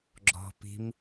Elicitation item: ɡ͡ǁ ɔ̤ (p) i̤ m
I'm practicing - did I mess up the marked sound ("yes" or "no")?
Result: no